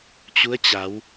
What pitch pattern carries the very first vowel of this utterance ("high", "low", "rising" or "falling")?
rising